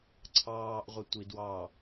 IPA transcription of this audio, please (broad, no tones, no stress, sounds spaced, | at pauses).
ǀʰ ɑː ʔ ʁʷ ə tʷ i d w ɑ